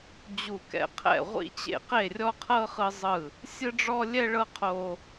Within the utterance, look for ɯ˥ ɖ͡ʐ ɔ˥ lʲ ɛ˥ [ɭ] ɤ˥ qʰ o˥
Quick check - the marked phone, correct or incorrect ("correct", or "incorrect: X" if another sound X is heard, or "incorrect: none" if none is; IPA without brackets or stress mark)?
correct